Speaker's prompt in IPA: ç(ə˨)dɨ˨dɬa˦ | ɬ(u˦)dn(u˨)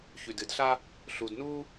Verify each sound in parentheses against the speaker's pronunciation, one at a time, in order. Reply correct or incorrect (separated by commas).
incorrect, incorrect, incorrect